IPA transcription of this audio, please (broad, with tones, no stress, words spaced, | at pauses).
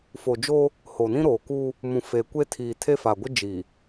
fo˨d͡ʒoː˦ | ho˨nĩ˦ɾoː˨kuː˦ | mũ˨fe˨ kʷe˦tʰiː˨ tʰe˦fa˨ ɡʷɪ˦d͡ʒiː˨